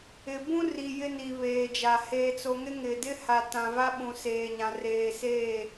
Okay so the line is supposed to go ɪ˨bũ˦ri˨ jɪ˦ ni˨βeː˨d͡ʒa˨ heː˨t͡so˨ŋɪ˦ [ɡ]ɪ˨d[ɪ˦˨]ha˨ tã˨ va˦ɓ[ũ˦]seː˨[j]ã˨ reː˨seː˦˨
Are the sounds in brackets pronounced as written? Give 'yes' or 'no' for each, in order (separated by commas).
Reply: no, no, no, no